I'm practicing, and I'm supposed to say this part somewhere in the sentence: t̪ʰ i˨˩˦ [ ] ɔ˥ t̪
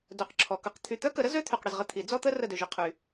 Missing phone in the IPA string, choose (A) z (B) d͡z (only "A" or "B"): B